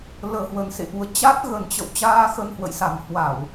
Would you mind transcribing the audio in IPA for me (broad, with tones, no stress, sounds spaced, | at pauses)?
l əː˨˩ h w ə˨˩ n s ḛ˧˨ ʔ u˨˦ ə̯ t͡ɕ a˦˥ t̚ ɣ ə˨˩ n t͡ɕ ə̰˧˨ w t͡ɕ aː˧ x ə˧ n h w ə̰˧˨ j s a˨˩ m h w a˧˩˨ w